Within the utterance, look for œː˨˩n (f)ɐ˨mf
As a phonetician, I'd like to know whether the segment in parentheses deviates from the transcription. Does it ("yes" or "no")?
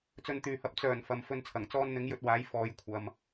no